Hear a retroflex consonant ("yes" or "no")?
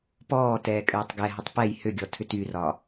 no